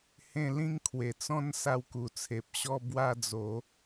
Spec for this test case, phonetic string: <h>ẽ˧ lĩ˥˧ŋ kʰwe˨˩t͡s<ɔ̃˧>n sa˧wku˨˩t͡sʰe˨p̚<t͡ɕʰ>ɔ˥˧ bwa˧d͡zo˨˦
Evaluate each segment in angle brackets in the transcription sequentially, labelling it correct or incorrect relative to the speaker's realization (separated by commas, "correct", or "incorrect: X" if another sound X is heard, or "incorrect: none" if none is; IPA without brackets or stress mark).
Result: correct, incorrect: ɔ̃˦, incorrect: ɕ